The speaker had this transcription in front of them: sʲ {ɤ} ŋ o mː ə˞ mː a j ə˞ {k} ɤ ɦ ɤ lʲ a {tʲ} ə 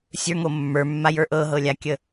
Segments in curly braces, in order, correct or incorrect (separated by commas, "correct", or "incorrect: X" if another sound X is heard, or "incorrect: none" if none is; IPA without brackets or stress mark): incorrect: ə˞, incorrect: ʔ, incorrect: kʲ